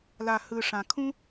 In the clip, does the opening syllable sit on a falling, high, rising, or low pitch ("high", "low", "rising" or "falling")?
low